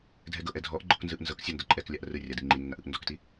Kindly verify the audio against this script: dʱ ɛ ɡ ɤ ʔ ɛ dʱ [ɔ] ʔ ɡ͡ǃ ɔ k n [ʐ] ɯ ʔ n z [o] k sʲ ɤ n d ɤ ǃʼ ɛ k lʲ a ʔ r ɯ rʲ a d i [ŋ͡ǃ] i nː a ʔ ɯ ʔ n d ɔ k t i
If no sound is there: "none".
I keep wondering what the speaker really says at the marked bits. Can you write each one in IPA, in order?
ɔ, z, ɤ, ŋ͡ǃ

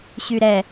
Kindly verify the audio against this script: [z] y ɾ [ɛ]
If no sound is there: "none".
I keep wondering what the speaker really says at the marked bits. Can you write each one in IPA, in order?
ɕ, ɛ

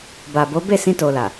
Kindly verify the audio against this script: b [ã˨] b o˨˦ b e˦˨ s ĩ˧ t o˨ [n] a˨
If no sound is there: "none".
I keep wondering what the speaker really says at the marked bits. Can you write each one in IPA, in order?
a˨, l

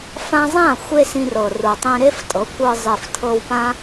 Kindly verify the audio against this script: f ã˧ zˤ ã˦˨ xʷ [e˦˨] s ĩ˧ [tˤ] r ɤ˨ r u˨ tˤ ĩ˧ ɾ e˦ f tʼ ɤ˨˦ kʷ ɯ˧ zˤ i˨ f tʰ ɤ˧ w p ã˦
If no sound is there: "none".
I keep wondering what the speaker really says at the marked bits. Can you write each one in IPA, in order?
e˧, none

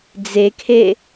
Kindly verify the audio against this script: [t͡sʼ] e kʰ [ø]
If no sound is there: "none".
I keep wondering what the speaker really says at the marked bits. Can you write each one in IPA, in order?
d͡z, e

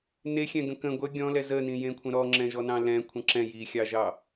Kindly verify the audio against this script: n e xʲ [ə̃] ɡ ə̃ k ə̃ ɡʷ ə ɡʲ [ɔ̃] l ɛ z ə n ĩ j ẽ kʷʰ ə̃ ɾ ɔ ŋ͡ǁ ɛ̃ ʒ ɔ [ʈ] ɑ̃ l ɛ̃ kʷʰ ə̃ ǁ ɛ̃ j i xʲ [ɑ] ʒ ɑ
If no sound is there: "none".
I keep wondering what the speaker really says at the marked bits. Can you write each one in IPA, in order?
ɛ̃, ɔ̃, n, ɑ

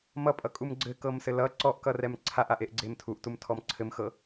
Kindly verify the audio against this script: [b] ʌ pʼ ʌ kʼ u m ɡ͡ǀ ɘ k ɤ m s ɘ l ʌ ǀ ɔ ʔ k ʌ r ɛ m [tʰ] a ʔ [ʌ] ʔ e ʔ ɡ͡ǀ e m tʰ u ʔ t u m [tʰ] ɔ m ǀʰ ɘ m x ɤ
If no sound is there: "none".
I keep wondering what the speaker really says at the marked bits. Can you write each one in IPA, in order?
m, ǀʰ, a, tʰ

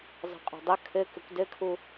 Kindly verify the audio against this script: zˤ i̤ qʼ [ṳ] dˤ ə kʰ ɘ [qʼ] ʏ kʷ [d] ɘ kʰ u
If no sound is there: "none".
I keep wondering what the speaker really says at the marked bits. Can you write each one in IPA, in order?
ṳ, k, d

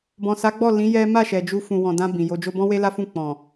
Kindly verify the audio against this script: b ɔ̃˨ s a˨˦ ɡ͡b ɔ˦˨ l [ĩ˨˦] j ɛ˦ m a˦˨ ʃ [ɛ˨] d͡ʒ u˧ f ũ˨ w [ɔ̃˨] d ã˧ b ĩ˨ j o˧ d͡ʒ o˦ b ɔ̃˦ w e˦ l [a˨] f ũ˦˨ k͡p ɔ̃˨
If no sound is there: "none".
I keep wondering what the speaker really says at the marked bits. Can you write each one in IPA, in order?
ĩ˨˦, ɛ˨, ɔ̃˨, a˦

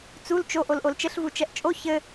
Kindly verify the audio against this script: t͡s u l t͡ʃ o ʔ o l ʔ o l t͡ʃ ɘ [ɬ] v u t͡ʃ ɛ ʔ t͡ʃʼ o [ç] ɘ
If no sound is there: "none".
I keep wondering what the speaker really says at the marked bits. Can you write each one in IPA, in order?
ɬ, ç

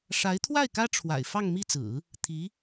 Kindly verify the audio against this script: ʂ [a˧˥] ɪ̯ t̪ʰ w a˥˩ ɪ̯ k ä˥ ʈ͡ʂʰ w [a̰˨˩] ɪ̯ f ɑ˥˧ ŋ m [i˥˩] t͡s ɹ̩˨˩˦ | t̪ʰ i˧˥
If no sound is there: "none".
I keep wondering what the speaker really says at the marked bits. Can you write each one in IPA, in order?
a˧˥, a̰˨˩, i˥˩

